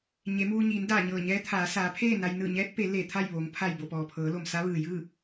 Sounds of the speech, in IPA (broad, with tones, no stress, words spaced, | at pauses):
ɲe˩˧muː˧ɲiː˩˧n daː˧˩ɲɤː˧˩ɲɛː˧˥t̪ʰaː˩˧ saː˩˧pʰeː˥˨ na˧j nɯː˧˩ɲɛː˧˥t̚pe˩˧ le˧˩t̪ʰa˥˨jʋoː˩˧ŋ pʰa˧˩jbo˧˩pɔː˩ pʰɤː˩˧lo˩msa˧˥ʋɯː˩ jɯː˥˨